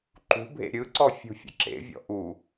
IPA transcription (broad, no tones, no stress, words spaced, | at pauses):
ǃṳbʱḛ ɾʲɯǀɔ fʲṳfʲə̰ǁḛvʲɔ̰ ʔu